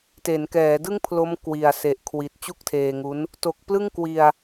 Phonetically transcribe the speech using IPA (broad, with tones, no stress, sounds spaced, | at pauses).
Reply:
t e˩˦ n k ɛː˩˦ d ɯ˥˩ ŋ pʰ l o˦˥ m k w i˨˩ a̯ s e˨˩ ʔ kʰ w i˨˩ t̚ t͡ɕ u˥˩ k̚ tʰ eː˧ ŋ u˦˥ n | t o˨˩ k̚ p l ɯ˥˩ ŋ k w i˧ a̯